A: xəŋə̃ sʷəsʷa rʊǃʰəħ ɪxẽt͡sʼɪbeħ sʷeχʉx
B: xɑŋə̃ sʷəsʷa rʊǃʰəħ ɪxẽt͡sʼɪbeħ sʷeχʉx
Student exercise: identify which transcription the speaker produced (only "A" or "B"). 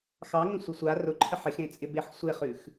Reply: B